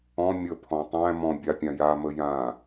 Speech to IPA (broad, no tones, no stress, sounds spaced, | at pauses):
ɔ̃ mʲ ə pʰ ɔ̃ tˤ æ̃ m ɔ̃ bʲ a pʲ ã j a m ə j ã